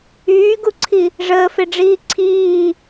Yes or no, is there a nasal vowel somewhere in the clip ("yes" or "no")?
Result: no